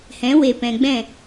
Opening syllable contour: rising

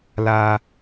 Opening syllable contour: low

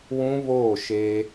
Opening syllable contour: high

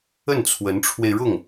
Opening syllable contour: falling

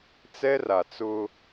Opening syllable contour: high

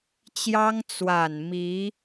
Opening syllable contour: high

